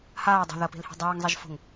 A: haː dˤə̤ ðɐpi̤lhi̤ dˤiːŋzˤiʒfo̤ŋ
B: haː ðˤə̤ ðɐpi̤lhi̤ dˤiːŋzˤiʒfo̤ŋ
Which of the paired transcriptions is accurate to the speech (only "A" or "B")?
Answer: A